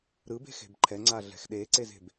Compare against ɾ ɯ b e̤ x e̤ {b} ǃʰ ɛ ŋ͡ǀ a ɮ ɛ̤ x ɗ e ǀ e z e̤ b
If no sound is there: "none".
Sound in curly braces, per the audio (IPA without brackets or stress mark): b